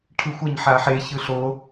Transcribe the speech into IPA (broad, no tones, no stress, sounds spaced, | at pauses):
ʈʰ ɯ xʷ ɐ ɲ ħ a ħ e ç ɯ ɬ o